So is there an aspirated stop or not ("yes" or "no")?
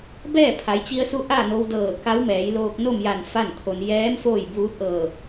yes